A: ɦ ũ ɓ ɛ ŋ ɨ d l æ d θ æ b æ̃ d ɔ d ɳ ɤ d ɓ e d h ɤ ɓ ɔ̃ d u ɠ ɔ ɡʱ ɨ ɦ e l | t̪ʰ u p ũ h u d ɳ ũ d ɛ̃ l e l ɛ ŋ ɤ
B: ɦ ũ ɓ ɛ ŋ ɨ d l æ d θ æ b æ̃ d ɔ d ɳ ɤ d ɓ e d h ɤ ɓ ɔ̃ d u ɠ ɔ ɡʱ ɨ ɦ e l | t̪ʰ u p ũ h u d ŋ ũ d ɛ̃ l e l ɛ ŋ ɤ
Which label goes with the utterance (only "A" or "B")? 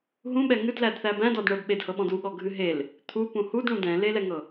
A